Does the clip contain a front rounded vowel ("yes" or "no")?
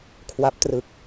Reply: no